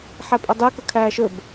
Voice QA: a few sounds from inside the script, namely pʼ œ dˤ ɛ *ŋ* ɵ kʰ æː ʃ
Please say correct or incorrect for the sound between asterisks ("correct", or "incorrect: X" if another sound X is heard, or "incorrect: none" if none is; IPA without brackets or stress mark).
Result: incorrect: k